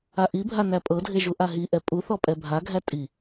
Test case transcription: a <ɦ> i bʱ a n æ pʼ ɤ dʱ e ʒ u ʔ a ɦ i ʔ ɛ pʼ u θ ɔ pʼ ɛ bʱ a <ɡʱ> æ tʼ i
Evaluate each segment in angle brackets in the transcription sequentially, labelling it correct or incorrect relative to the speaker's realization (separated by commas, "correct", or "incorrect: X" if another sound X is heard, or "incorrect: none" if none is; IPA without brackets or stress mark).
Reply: incorrect: ʔ, correct